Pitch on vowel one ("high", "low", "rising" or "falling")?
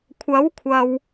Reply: rising